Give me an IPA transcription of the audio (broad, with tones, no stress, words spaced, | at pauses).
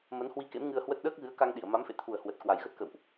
mə˨˦nhwi˧kḛ˧˥m ŋɨ˧ə̯hwə˦˥t̚ ɗəː˦˥k̚ɣɨ˨˦ə̯ka˧ŋɗi˧˩ə̯ ma˨˦mfḛ˧˨t̪ʰu˨˩ə̯ hwə˨˩t̚ kwa˨˩jɣə˦˥t̚kə̰˧˨wʔ